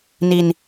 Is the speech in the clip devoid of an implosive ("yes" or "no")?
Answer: yes